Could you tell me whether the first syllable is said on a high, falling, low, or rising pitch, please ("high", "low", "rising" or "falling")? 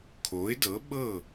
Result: rising